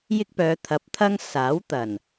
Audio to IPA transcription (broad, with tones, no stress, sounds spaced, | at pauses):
j ɪ˥ k̚ p œː˨˧ t̪ʰ ɐ˨˥ p̚ t̪ʰ ɐ˥ ŋ s aː˨˥ w t̪ ɐ˨˩ n